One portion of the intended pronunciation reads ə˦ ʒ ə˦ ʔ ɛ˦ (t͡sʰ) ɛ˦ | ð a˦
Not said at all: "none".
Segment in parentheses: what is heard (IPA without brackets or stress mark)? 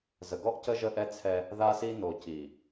t͡sʰ